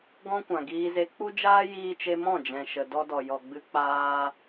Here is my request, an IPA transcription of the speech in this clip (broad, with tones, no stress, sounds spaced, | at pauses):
ɡ ɔ̃˦ kʷ ã˨ ɡ iː˧ z e˧ k͡p u˦ d͡ʒ aː˦ j iː˧ t͡ʃ e˧ m ɔ̃˦˨ d͡ʒ ɛ̃˨ ʃ ə˨ d ɔ˧ d ɔ˨ j ɔ˨ ɡ͡b ɨ˧ k͡p aː˧